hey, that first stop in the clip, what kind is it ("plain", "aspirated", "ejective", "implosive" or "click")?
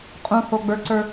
ejective